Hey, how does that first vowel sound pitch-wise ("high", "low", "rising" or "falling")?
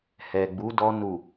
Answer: low